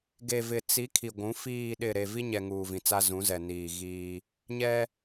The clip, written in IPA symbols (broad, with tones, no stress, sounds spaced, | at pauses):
ɡ e˨ v ɪ˨ t͡s i˨˦ kʰ i˨ ɡʷ ũ˨˦ f iː˨ ɗ ɪ˨ ɾ e˨ v i˦ ɲ ɛ˨ ŋ uː˨ v ĩ˨ t͡s a˦ z ũ˨˦ z ɛ˨ n iː˨ ɣ iː˦ | ɲ ɛ˦